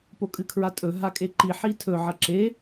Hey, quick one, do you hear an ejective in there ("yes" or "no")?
yes